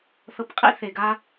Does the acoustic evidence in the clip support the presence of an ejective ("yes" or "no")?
yes